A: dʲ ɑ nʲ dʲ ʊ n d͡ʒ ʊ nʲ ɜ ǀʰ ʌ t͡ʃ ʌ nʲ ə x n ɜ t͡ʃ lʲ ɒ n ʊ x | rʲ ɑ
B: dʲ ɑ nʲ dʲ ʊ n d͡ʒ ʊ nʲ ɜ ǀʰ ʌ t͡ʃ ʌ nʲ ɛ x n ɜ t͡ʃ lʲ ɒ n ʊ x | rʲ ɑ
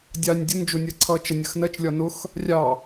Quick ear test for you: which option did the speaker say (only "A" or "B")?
A